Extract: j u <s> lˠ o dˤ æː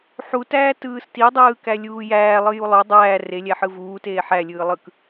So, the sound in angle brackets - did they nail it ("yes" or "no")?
no